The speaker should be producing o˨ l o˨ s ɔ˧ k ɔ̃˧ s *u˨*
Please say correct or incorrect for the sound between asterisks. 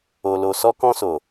incorrect